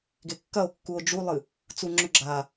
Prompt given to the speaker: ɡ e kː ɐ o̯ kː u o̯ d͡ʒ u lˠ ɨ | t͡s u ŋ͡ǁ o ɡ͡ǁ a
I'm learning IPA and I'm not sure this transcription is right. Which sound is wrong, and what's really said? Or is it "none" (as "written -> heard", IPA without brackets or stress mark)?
o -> ɵ